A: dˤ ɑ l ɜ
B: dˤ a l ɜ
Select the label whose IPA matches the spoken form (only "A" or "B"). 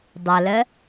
B